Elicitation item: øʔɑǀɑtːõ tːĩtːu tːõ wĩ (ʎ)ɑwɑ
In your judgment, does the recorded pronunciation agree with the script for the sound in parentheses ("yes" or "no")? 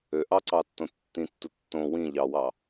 yes